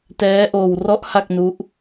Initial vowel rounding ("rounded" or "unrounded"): unrounded